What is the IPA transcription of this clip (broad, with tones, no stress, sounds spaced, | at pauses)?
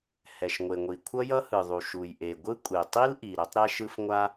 h ɛ˩ ʃ ŋʷ e˩ ŋʷ i˩ kʷʰ ʌ˥ j ʌ˥ h ɯ˩ ðˤ u˩ ʃ u˩ j ʔ e˩ ɡʷ ɯ˥ kʷʼ e˩ tˤ i˥ l ʔ i˩ ɾ ɛ˥ tˤ ɾ ɛ˥ ʃ ɯ˥ f ŋʷ a˥